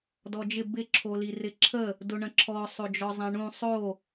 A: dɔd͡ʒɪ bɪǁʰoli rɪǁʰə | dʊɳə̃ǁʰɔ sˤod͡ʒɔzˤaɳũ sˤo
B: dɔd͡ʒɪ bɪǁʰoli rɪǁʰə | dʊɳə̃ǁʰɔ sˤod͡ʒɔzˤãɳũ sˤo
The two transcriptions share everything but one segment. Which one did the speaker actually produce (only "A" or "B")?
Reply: B